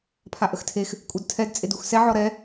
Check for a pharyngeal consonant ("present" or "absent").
present